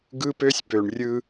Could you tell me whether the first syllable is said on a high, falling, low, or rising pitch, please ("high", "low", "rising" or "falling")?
high